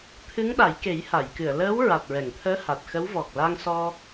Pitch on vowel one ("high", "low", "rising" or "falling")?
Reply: rising